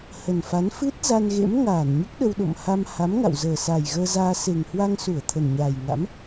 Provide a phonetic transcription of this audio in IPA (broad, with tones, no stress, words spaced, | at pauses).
hə˨˩nfa˨˦n fɨ˦˥t̚ za˧nɣḛ˧˥m ŋaː˧˩n ɲu˦˥k̚ɗə˧wɗo̰˧˨mha˧m ha˨˦mŋa̰˧˨wzəː˨˩sa˨˩j ɣəː˧zaː˧ se˨˩ŋhwa˧ŋsu˧˩ə̯ t̪ʰə˨˩nɲaː˨˩jŋa̰˧˥m